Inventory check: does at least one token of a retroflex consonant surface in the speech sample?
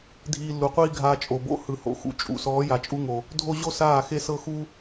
no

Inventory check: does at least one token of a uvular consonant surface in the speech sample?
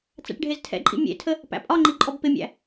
no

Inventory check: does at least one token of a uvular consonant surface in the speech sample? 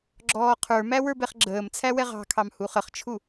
yes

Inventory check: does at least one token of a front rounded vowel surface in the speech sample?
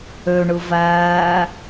yes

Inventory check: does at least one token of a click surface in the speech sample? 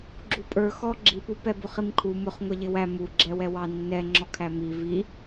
yes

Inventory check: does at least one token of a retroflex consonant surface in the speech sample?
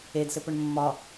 yes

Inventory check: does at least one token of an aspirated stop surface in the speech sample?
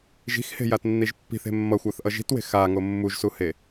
no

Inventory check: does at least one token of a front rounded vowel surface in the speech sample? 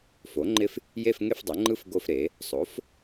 no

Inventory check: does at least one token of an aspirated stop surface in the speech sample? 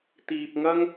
no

